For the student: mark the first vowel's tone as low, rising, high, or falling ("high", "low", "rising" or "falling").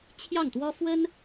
falling